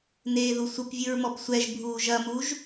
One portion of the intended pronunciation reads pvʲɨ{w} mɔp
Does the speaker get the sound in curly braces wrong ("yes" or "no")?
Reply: yes